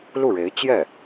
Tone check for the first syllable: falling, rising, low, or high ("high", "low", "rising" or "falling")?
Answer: falling